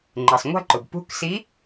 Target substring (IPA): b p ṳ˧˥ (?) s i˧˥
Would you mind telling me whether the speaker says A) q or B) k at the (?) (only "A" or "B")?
B